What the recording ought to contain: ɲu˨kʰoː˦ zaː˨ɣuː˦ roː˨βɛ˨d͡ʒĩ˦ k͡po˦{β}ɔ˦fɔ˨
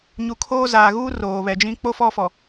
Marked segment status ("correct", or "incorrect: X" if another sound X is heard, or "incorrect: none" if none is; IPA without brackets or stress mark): incorrect: f